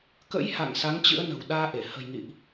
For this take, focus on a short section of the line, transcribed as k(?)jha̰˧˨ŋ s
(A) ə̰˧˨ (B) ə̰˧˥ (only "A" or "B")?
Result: B